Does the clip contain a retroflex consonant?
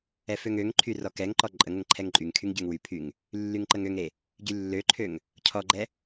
no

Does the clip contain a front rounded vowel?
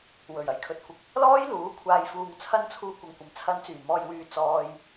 yes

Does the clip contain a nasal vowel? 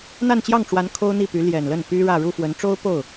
no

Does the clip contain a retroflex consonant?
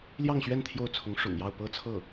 yes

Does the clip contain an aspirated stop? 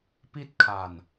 yes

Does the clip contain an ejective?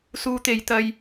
no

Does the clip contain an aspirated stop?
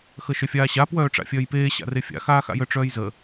no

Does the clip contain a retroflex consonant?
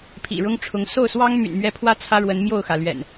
yes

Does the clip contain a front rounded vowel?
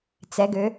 yes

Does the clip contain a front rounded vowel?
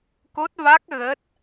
no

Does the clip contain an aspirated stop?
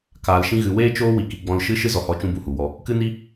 no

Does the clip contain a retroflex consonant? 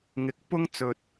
no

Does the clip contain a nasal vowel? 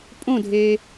yes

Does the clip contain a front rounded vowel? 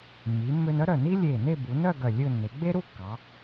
yes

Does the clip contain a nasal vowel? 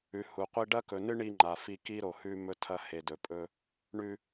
no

